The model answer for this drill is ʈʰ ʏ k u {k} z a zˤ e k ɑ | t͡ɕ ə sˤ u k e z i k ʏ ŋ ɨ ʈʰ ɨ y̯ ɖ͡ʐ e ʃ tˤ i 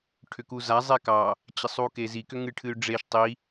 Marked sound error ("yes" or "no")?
yes